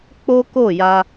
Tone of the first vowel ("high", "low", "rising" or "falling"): high